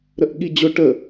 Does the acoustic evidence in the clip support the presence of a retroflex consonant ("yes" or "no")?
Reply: yes